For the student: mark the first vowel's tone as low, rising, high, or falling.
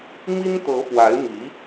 high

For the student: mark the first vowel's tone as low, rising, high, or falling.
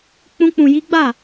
high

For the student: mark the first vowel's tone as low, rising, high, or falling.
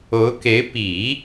rising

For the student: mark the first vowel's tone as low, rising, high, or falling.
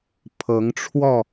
rising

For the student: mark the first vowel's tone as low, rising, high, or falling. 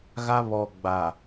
high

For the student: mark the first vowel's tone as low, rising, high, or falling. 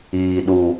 low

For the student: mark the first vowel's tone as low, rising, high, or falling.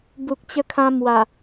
low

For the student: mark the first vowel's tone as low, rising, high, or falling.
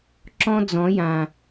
high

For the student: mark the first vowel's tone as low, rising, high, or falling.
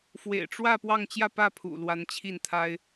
low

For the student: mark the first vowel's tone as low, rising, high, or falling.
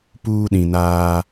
high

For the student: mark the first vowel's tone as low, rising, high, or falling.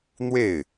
falling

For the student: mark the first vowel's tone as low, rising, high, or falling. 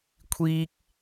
high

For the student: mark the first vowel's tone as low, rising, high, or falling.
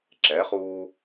rising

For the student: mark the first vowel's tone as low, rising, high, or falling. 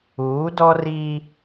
rising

